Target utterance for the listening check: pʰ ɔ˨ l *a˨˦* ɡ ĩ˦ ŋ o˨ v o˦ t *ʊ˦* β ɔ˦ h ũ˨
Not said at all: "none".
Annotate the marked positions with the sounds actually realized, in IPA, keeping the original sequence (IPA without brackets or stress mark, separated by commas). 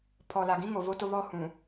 a˨, ʊ˦